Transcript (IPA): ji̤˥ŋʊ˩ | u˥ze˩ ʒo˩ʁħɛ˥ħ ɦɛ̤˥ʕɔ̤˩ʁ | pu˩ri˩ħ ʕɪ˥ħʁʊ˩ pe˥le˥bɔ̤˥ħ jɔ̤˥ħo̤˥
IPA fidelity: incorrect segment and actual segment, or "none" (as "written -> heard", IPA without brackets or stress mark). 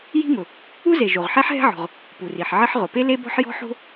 none